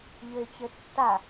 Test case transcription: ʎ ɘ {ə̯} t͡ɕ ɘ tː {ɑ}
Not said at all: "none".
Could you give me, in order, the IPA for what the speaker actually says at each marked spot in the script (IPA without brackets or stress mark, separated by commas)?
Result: ɪ̯, a